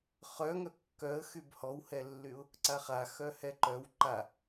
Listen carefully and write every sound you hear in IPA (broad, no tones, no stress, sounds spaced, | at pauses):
χ œ ŋ œ kː œ ə̯ x y b h ɔ w h ɛ lː y ʊ̯ | ǀ a χ a x œ h ɛ ǃ œ w ǃ a